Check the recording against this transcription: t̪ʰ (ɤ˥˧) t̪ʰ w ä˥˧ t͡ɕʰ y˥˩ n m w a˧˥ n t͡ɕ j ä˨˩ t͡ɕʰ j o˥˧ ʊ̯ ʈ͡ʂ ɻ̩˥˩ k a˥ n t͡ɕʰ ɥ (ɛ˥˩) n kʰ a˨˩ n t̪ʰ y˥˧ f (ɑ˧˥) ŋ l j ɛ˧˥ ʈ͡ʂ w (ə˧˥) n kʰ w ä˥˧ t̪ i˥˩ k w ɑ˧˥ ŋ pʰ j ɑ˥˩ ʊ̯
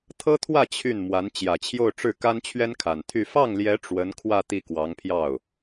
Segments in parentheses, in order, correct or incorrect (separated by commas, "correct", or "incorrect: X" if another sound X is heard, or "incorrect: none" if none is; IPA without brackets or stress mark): incorrect: ɤ˥, incorrect: ɛ˥, incorrect: ɑ˥˩, correct